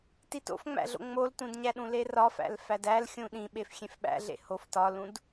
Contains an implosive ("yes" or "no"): yes